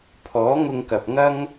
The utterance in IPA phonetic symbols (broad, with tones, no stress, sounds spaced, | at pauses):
pʰ ɔː˨˥ ŋ ʊ˧ ŋ k ɐ˨ p̚ ŋ ɐ˥ ŋ